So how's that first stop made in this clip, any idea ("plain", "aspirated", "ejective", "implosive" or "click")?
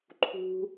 click